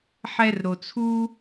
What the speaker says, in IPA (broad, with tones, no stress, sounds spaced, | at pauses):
ħ ɛ˦ r ɾ o˨ t͡sʰ u˥